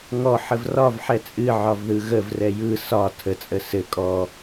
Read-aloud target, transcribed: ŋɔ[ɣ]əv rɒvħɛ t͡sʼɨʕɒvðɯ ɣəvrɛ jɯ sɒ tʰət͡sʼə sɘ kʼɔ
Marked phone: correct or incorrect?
incorrect